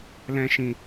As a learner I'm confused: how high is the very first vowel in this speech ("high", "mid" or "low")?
mid